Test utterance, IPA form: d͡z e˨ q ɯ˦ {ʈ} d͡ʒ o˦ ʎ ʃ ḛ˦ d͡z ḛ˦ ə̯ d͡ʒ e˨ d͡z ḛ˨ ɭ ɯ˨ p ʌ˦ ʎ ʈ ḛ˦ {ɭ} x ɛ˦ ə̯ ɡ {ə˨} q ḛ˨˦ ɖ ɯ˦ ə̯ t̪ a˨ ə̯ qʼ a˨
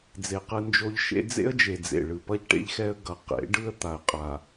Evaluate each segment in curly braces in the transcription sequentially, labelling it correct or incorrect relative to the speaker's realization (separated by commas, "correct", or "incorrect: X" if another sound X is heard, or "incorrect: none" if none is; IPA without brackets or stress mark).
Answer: incorrect: n, incorrect: ʎ, incorrect: ʌ˨